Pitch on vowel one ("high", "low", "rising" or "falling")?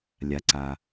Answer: low